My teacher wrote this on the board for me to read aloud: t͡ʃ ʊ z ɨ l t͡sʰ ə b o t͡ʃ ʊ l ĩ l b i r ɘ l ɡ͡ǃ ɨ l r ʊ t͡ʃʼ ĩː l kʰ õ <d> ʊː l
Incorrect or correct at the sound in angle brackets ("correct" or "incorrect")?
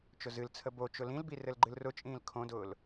correct